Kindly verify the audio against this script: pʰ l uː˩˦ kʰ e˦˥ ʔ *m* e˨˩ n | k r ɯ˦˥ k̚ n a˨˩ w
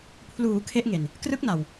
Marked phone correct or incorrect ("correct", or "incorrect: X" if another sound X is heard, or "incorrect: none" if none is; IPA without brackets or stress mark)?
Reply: incorrect: ŋ